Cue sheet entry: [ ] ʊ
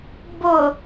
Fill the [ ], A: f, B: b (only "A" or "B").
B